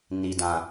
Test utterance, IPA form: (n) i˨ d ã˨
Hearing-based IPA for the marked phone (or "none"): n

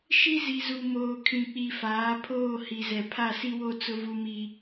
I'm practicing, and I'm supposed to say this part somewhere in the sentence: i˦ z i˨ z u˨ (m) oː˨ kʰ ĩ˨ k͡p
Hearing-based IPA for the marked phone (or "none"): m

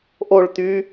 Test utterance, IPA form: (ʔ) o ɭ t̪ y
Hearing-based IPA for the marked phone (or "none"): ʔ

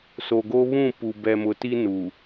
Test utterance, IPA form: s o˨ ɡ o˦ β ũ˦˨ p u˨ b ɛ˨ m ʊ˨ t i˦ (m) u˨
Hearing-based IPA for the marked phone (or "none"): n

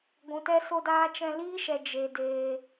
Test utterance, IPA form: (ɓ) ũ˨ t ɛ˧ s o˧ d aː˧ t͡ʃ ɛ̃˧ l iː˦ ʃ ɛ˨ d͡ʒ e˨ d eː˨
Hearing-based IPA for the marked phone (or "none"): ɡʷ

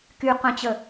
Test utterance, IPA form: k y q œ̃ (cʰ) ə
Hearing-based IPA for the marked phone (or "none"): t͡ɕ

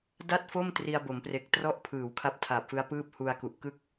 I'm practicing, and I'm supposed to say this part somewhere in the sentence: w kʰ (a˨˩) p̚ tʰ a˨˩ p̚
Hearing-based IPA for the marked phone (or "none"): a˦˥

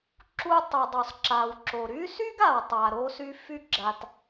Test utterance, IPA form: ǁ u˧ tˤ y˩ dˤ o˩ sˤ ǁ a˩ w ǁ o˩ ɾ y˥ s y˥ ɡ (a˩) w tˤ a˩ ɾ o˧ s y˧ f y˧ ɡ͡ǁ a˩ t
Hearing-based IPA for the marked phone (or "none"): a˩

